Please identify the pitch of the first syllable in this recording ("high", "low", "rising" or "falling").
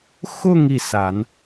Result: falling